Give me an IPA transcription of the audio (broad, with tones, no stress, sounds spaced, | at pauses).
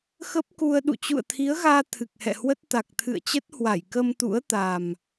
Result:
x ə˦˥ p̚ k u˧ ə̯ ɗ ṵ˧˨ t͡ɕ ṵ˧˨ ə̯ t̪ʰ i˨˦ ə̯ ɣ aː˧ t̪ʰ ɨ˨˩ k̚ h ɛ̰˧˨ h w ə˦˥ t̚ t̪ a˨˩ k̚ t̪ʰ ɨ̰˧˨ ə̯ t͡ɕ ə˦˥ t̚ h w a˧˩ j k ə˧ m t̪ ṵ˧˥ ə̯ t̪ a˨˩ m